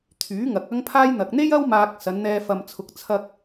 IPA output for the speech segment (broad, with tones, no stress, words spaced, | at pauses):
t̪ʰyː˨˥ŋɐ˨k̚ɐ˥ŋpʰaː˥j n̪ɐ˨k̚n̪e˥jɐ˥w maː˧k̚sɐ˨˧nn̪ɛː˧ fɐ˨m t͡sʰʊ˨k̚t͡sʰɐ˧k̚